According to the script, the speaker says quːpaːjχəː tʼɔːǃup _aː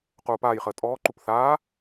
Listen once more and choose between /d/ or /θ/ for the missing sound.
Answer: θ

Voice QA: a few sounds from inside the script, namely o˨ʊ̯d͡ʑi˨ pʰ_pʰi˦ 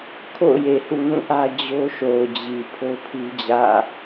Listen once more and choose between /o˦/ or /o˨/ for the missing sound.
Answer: o˦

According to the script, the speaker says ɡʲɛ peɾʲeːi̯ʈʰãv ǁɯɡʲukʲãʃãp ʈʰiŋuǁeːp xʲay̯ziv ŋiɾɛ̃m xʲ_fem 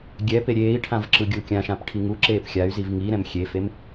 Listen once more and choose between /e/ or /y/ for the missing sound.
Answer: e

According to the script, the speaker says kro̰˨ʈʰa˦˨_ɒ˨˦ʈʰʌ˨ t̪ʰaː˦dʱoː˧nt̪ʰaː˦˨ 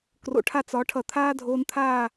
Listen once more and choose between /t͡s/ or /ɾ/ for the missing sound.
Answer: t͡s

